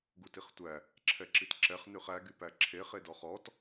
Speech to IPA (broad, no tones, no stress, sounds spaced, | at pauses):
ɡ u t i χ tʷ æ | ǁʰ ɛ ǁ i t ǁ ɛ χ n ʉ χ æ ɡ y p æ ǁʰ e χ e d ɔ χ ɔ t